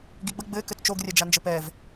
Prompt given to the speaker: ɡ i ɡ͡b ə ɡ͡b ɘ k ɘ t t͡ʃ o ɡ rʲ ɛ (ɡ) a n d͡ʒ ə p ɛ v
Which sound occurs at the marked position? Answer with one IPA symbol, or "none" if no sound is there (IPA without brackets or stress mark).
d͡ʒ